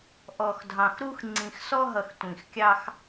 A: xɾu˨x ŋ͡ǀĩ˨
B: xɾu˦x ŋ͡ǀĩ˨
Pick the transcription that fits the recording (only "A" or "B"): B